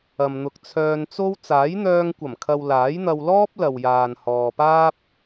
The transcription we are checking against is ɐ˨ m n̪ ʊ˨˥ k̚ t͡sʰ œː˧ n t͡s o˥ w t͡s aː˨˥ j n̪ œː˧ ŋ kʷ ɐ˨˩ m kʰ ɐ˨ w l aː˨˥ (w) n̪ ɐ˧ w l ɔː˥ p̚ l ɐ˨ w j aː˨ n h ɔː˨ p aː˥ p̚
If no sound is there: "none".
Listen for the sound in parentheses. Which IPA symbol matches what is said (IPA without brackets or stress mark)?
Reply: j